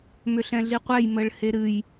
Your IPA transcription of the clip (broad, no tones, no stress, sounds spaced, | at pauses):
m ʏ ɬ ɛ̃ ɮ i qʷ ɛ j m ə ɭ h e ɾ ɨ j